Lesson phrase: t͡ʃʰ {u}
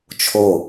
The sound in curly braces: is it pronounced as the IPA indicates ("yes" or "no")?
no